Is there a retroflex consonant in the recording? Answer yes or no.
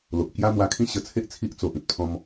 no